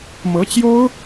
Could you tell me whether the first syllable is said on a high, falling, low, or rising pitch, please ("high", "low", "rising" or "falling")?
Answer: rising